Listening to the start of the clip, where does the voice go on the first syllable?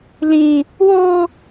high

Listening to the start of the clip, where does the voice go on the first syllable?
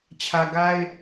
low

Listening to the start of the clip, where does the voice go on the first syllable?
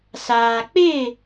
low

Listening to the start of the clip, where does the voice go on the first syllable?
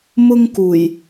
high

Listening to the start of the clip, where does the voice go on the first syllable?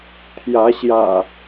rising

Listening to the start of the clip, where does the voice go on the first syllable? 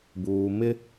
low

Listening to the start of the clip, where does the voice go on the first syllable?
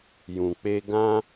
low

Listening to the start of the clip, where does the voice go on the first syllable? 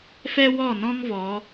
high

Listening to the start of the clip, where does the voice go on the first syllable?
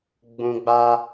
low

